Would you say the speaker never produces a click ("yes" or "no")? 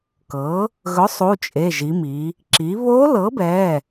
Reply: no